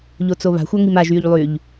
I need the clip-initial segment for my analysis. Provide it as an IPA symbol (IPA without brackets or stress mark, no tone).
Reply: ʎ